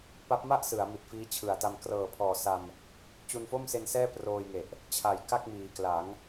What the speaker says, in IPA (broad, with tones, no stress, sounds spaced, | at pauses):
p a˦˥ p̚ m a˥˩ ʔ s ɯ˩˦ a̯ m i˨˩ t̚ f iː˦˥ t͡ɕʰ ɯ˨˩ a̯ t a˧ m k r ɤː˨˩ pʰ ɔː˨˩ s a˧ m | t͡ɕ u˧ n f o˥˩ m s e˧ n s ɛː˥˩ p r oː˧ j ŋ e˨˩ ʔ | t͡ɕʰ a˨˩ j k a˥˩ k̚ m iː˨˩ k l a˩˦ ŋ